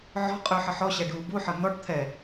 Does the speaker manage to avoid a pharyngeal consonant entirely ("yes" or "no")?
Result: no